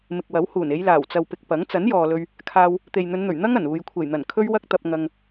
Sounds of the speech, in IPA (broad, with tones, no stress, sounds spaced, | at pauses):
m ɪ˨ k̚ w ɐ˨˥ w h uː˨˩ n e˨˧ j l aː˨˩ w t͡s ɐ˨ w p ɪ˨ k̚ p ɐ˨˥ ŋ t͡s ɐ˨˥ n j ɔː˨ l ɵ˧ ɥ | kʰ aː˧ w | t̪ e˨ j n̪ ɵ˨˧ n n̪ ɵ˨˩ ɥ n̪ ɐ˥ ŋ ɐ˨˩ n uː˨ j kʷʰ e˨˩ j n̪ ɐ˨˩ n kʰ ɵ˥ ɥ w ɐ˥ k̚ t̪ ɐ˧ p̚ ŋ ɐ˧ ŋ